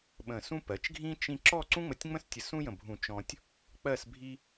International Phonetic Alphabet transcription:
ɓə̃˧˩sũ˥p ɜ˩˧t͡ʃɡʱĩ˥ t͡ʃĩ˥ ǁɔ˥˧ǀũ˥ŋ͡mə˧tʲŋ͡mə̃˥s tʲə˧sũ˥jə̃˧˩bʱũ˧˩ t͡ʃɔ̃˧tʲ | k͡pɜ˥˧sbʱi˥

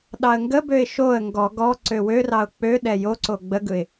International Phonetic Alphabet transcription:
ɗɑə̯ŋɡəbøɪ̯ ʃoə̯ ŋɡɔ ɡɔ ǀøwørɑʊ̯ k͡pøɗɛ joǀo ɡ͡bəɡɯɪ̯

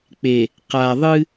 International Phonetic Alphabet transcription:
k͡pe˨ | qa˨ðˤɨ˦

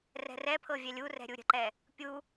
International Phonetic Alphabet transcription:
rɛ̤rɛpʰɤ vʲɛlʲurɛ̤ ɾʲuɾʲə̤ǃɛ | pʲu

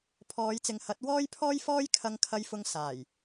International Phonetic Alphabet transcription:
pʰɔː˨˧jt͡sɪ˨˧ŋhɐ˨˥t̚ wɔː˥jpʰɔː˥jfɔː˥j kʰɐ˧ŋkʰɐ˧jfʊ˧ŋ saː˨˩j

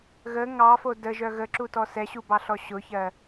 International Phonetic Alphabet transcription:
ɣə ŋɑfo dəʒœ ɣəǁutɔ sɛɕubɑɬɔ ɕʊçɜ

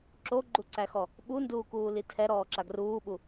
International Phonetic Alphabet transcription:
ǁoɡ͡ǃuǀæxɔ | ɓunduːkuːli tʰɛɾɔːǁa ɡruːɓu

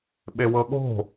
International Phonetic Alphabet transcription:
ɓewɤɠo̤

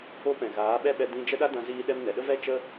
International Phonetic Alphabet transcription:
o˧pɛ̃˨ ɣaː˨˦ ɓɛ˦ɓɛ˧ dĩ˧ d͡ʒə˦ ɗa˦dã˧ziː˧ɗɛ˧m nɛ˨ɗə˦vɛ˦ t͡ʃə˦

